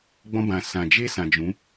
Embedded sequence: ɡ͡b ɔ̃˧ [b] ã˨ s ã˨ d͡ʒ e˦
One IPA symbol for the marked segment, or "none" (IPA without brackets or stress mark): b